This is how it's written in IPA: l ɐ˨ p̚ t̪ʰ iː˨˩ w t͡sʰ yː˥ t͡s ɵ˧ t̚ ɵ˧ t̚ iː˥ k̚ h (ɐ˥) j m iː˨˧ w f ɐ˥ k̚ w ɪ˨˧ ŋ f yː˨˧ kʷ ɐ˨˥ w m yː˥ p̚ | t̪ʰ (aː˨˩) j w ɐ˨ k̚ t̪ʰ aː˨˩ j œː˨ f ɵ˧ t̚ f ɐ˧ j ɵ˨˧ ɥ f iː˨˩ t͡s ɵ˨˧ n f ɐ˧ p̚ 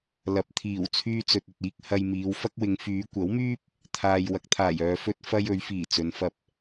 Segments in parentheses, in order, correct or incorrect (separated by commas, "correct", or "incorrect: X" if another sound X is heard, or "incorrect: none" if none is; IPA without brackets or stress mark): incorrect: ɐ˧, incorrect: aː˨